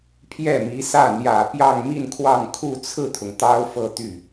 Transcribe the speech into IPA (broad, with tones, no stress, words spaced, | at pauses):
pʰjɛ˥˩mi˧˥sä˥˩ n̪jä˨˩ pjɑ˥˧ŋmi˥˧nkʰwɑ˥˧ŋ kʰu˥˧ t͡sʰɹ̩˥˩t̪ʰʊ˩ŋ t̪ɑ˥ʊ̯fɤ˥˧t̪y˥˩